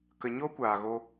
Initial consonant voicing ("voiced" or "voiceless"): voiceless